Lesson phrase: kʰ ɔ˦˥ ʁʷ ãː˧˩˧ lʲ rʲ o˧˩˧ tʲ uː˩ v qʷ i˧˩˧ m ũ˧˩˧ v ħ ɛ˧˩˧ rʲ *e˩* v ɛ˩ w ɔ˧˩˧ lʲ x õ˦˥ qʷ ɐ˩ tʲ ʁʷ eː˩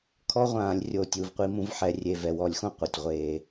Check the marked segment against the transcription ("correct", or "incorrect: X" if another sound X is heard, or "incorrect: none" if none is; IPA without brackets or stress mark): correct